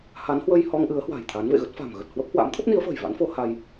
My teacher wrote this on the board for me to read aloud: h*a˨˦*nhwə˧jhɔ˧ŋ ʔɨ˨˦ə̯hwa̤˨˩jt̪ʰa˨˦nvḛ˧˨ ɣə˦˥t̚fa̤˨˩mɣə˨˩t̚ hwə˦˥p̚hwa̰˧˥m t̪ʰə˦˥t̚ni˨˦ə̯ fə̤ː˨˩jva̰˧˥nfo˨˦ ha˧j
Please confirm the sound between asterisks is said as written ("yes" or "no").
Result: yes